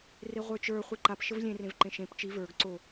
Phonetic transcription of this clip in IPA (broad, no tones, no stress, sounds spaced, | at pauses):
r e ʁʷ ə˞ t͡ʃ ə˞ χʷ i ǃ a p ʃ ə v lʲ ẽ r ẽ v ǃ ẽ ʃ ẽ p t͡ʃ i v ə˞ ɡ ǀ o